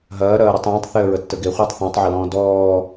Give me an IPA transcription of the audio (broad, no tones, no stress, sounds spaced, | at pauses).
ɦ ɐː ɾ ɐː ɾ ə tˤ ẽː tˤ θ e ə̯ ɹ ə tː ə ɡ e χʷ əː tˤ θ ɔ̃ tˤ ʕ ɐ l ɔ̃ː d ɔː